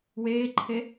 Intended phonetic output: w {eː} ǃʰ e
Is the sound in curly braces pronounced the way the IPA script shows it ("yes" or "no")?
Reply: yes